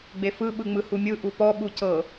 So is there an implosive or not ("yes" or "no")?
yes